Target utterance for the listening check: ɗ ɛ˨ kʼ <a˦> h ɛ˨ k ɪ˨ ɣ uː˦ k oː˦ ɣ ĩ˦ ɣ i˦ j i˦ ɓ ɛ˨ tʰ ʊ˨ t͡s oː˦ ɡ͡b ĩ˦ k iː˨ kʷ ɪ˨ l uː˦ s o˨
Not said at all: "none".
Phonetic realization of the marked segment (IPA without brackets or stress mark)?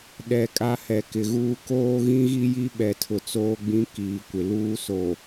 a˦